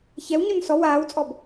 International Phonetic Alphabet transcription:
çɛwɲon sɔ waːwt͡sʼɔb

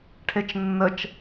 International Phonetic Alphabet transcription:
ʈʰet͡ʃnːət͡ʃ

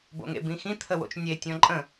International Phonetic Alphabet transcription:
bo̰ŋḛbĩxĩ t̪ʰəwo̰t͡ʃnʲe tʲɔ̃ǃʼə̃

